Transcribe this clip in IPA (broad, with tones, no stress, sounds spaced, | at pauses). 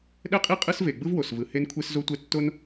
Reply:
ɗ ɛ˥ qʼ i˥ qʼ ɯ˥ s v e˩ ɡ͡b ɯ˥ v w o˩ s v ɯ˩ h e˥ n kʷʰ e˥ s z o˥ tʷ ɛ˥ tː o˥ n